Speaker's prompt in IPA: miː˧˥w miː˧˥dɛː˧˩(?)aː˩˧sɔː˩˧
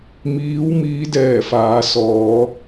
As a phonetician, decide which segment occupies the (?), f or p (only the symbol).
f